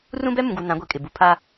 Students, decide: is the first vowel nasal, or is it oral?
nasal